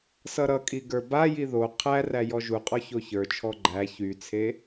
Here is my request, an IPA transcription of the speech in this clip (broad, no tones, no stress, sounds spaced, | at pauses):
s ʌ ɾ ʌ kʼ i ɡ ə˞ b a j i ð o qʰ æ r æ j ɔ ʒ u qʼ ɔ ç o ç ə˞ t͡ʃʰ ɔ ɡ͡ǃ æ ç y t͡sʰ e